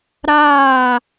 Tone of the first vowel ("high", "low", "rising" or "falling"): falling